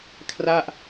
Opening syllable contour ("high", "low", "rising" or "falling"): falling